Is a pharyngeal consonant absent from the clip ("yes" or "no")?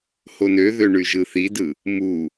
yes